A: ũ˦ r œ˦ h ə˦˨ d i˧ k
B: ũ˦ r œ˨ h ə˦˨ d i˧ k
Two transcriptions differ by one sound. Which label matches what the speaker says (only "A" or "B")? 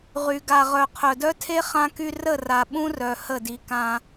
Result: B